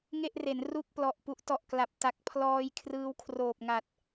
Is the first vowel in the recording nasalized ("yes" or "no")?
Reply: no